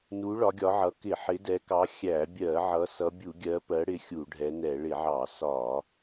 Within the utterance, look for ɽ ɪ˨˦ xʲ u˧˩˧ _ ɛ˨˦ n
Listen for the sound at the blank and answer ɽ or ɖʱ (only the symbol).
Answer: ɖʱ